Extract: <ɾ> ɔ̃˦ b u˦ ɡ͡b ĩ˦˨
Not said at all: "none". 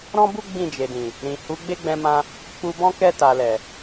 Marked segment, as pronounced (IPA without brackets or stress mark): ɾ